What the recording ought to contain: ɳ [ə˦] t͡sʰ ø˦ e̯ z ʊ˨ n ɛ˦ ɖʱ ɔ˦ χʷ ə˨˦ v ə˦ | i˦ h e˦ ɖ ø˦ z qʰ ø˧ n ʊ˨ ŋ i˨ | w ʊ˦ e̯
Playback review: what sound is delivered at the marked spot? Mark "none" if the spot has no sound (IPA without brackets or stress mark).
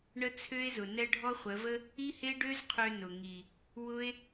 ə˦